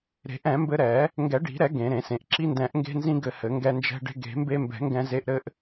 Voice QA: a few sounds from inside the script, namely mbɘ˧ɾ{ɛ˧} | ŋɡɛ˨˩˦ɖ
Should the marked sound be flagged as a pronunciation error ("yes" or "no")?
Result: yes